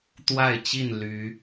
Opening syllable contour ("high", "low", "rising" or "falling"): falling